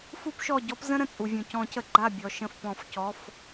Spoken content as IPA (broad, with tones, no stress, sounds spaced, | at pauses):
f u˦ p ʃ ɔ˧˩ ɟ ɔ˦ p z ə̃˦ ɾ ə̃˩ t͡sʼ u˩ vʲ ũ˩ c ɔ̃˨˩˦ c ə˩ ɡ͡ǃ a˥˨ bʲ ɔ˩ ʃ ə̃˧˩ f p ɔ̃˨˩˦ f c ɔ˩˧˩ f